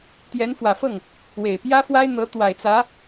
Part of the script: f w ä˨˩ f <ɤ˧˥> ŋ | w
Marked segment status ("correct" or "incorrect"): incorrect